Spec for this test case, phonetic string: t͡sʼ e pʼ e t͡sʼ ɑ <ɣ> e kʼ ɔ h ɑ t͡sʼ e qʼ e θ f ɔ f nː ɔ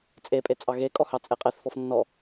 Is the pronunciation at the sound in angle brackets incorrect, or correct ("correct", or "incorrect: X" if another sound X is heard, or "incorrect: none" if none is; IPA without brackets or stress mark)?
correct